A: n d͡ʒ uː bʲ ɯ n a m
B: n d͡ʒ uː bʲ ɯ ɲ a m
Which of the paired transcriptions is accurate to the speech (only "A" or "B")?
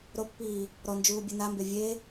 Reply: A